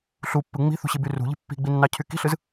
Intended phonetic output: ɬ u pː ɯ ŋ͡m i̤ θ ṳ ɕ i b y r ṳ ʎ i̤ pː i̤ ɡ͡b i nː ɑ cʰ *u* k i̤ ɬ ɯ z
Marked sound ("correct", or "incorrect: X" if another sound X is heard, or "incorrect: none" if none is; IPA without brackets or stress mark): incorrect: y